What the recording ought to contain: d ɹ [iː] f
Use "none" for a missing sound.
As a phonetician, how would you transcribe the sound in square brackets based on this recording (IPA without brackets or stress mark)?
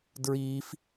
iː